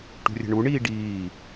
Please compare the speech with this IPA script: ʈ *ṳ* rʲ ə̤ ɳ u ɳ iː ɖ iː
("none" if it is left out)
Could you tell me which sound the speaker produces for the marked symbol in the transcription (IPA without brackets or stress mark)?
ṳ